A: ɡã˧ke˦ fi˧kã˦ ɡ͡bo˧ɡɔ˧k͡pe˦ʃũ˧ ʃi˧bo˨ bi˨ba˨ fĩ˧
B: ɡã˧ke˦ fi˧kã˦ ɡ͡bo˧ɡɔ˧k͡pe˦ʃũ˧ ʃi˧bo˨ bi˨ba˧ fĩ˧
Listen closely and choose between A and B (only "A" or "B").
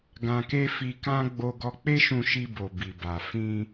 A